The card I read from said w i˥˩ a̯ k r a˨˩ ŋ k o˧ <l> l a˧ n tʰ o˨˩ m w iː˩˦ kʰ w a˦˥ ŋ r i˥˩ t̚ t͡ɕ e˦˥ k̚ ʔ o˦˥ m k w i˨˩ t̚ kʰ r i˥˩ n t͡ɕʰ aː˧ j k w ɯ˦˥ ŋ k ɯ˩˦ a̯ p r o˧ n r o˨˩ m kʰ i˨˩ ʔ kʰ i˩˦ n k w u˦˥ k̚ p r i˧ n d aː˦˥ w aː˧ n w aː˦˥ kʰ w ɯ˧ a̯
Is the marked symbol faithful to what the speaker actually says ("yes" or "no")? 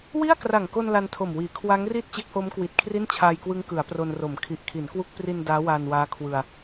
no